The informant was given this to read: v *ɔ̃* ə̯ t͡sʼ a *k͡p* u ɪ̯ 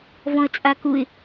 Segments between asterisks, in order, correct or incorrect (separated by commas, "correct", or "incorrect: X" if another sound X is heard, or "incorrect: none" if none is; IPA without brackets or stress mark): correct, incorrect: k